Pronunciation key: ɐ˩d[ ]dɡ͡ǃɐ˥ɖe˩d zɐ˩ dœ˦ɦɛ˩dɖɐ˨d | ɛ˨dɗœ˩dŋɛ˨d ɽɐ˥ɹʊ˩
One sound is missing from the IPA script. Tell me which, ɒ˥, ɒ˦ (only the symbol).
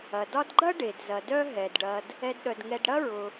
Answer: ɒ˦